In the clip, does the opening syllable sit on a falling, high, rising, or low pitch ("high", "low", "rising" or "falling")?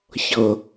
low